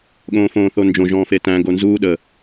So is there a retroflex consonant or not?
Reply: no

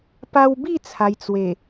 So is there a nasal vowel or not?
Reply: no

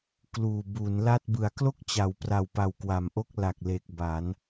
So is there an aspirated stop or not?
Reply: no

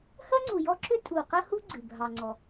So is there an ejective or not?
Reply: yes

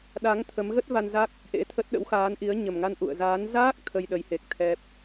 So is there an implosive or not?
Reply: yes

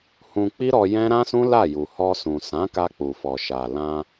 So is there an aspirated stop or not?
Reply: no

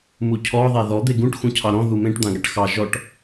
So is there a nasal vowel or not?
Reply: yes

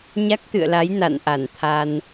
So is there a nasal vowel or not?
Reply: no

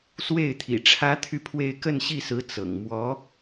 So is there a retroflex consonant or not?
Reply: yes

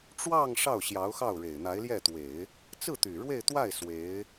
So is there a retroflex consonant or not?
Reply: yes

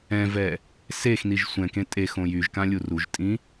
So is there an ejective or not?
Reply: yes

